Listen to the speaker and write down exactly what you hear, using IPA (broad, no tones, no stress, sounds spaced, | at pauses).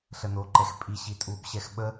ɬ ə n o ǃ ɛ x pʼ i ɕ i tʼ u b ɕ ɛ x ɓ ə